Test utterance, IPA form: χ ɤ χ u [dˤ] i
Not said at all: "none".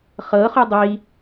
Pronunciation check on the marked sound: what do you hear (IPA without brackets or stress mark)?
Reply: dˤ